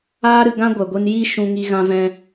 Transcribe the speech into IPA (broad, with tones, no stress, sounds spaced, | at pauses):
aː˧ ɾ ɨ˨ ɡ ã˦ ɡʷ ɛ˨ ɡʷ i˧ n j i˦ ʃ ũ˧ ŋ i˧ ɣ ã˧ v ɛ̃˧